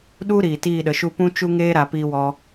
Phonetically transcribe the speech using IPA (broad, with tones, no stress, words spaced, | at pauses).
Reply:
ɗu˦ ɾiː˨tiː˦˨ɗə˨ʃu˦ pũ˦t͡ʃu˦ŋeː˦ɾa˨ piː˧wɔ˧